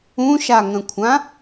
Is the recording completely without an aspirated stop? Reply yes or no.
no